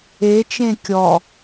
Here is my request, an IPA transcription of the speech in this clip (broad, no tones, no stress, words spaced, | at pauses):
e t͡ʃẽkʲɔ